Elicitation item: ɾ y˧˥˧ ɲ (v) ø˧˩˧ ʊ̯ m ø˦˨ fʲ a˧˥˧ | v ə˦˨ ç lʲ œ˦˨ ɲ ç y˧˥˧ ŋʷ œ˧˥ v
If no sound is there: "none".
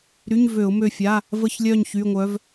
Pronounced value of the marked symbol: v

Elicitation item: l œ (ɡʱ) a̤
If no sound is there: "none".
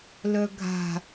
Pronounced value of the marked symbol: ɡʱ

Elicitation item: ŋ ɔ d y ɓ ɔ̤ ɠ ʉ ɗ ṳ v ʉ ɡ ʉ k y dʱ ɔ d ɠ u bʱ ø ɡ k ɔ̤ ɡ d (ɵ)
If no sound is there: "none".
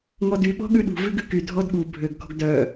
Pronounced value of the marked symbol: œ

